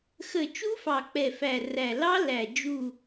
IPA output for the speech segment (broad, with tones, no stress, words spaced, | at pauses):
xə˨˩ t͡ʃu˦˥fɑ˨˩ k͡pɛ˨˩fæ˨˩ræ˨˩ lɑ˦˥læ˨˩ d͡ʒu˨˩